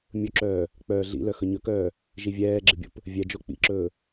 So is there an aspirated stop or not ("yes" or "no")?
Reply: no